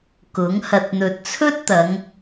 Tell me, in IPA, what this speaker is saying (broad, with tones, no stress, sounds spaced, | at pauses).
k ʊ˨˥ ŋ h ɐ˨ t̚ n̪ ɵ˨ t̚ t͡sʰ ɵ˥ t̚ t̪ ɐ˨˧ ŋ